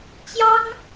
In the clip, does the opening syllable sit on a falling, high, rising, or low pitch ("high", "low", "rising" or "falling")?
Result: high